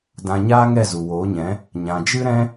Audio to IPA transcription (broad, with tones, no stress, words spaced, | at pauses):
dã˧ɲaː˦ ŋɛ˦˨zu˨woː˨˦ɲɛ̃˨˦ | ɲã˨d͡ʒɨ˦ ɾɛ̃˦